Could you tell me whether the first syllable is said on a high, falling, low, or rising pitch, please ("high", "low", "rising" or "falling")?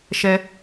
high